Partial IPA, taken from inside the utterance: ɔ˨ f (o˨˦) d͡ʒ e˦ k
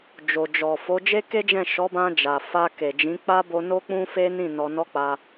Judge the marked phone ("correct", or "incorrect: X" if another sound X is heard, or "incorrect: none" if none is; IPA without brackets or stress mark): correct